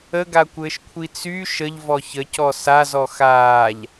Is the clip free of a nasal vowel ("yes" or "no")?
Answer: yes